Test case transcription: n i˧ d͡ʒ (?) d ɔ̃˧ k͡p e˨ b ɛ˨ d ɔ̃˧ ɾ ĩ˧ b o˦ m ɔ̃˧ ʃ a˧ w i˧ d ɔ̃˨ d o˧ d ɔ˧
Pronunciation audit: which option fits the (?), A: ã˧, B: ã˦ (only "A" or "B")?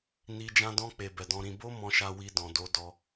A